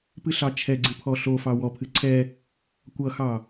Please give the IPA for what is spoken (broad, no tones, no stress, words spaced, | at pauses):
pɨɬɑt͡ʃʰɛɡ͡ǀɨ pʰɔɬofɑ wɔpʰɨ ǀʰɛ | kʷʌxɑ